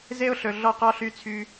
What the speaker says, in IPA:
z e˦ ʊ̯ ɬ ɵ˨ ɮ ɔ˦ q ɔ˦ ɬ y˦ t͡sʰ y˦

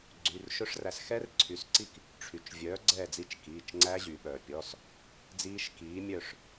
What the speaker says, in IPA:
ɡ͡ǀ y˩˧˩ r ʃ ɵ˦˥ ʂ r æ˨˥ s x ɛ˦˥ r ǀʰ y˩˧ s ǀ i˦˨ k | ʈ͡ʂʰ y˩˧ t͡ʃ vʲ œː˨˥ ɡ͡ǀ ɛː˦˨ d͡z i˦˨ t͡ʃ k iː˩˧˩ t͡ʃ ŋ͡ǀ æ˦˥ ʑ y˩˧ ɓ œː˩ pʲ ɔ˩˧˩ s | d͡z iː˦˥ ʃ k iː˨˥ mʲ œ˦˨ ʂ

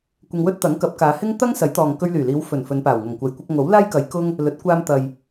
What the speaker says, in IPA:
kʷ ɪ˧ ŋ w ɵ˥ t̚ t̪ ɐ˨˥ ŋ k ɐ˨˥ p̚ k aː˨˧ h ɪ˥ ŋ t̪ ɐ˥ ŋ s ɐ˨˥ j t̪ ɔː˨ ŋ k ɵ˧ ɥ l yː˨˩ l iː˨˧ w f ɵ˨˩ n f ɵ˨˧ n p aː˨˩ w ŋ ɐ˨˩ ŋ kʷ ɐ˨˩ j kʷ ɐ˧ k̚ ŋ o˨˥ w l aː˥ j k ɐ˨˧ j k ʊ˥ ŋ | l ɵ˨˥ t̚ kʷ aː˧ m t̪ ɐ˨ j

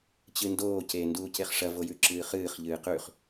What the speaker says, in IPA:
t͡ɕ ɨ n d oː c e n d uː c e χ ʂ ɐ v o j ʉ ǁ ɨː χ ɨː χ ʎ ɨː q ʉ χ

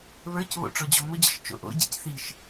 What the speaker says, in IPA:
β ə˞ c β o̰ ʈ͡ʂ ɔ d͡ʑ ɔ m ʊ d͡ʑ ɘ ʃ t͡ʃ o̰ ʔ o̰ ɟ ḭ c θ i ʃ

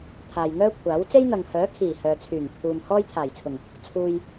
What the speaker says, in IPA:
t̪ʰ aː˨ j ŋ œː˥ kʷʰ aː˨˥ w t͡s e˥ j n̪ ɐ˨ ŋ h œː˨˥ kʰ iː˨˩ h œː˨ t͡sʰ yː˨˩ ŋ kʰ uː˨ m h ɔː˥ j t̪ʰ aː˨˩ j t͡sʰ ʊ˨˩ ŋ | t͡sʰ uː˨ j

